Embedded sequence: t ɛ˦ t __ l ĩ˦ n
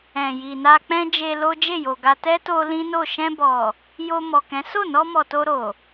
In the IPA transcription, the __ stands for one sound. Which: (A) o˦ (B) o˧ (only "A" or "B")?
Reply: B